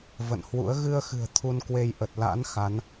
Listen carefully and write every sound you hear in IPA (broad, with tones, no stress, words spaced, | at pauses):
və̰˧˨nhwṵ˧˥ə̯ ɣɨ˧ə̯xɨ̤˨˩ə̯ t̪ʰu˧nkwe˧j ʔə˨˩t̚ la̰˧˥n xa˨˦n